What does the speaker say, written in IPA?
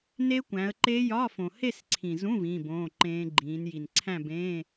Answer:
ne˦˥kʷæ̃˨˦ə̯ǃe˦˥ jɒ˧˥˧fõ˨ he˥˧sǀʰĩ˨zũ˧˥˧ vĩː˧˥˧bõː˧˥˧ǃẽː˦˥ ɡ͡ǃĩː˨˦n ji˨nǀʰæ̃˥˧bẽː˧˥˧

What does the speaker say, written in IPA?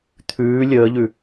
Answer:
t̪ʰʉː lʲəːʎʉ

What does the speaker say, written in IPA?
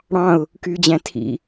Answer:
ɽɑ̃ʊ̯ | kyːd͡ʑæ̃tʰḭ

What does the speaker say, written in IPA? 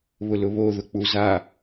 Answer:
βʊlʊβo ðʊk͡puza

